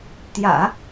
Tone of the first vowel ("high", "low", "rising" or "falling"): low